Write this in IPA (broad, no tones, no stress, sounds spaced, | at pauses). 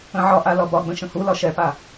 ə̃ ʕ ɒ ʔ a l ɒ b ɒ ɡ͡b ə̃ ʃ ə̃ h u l ɒ ʃ ɛ p a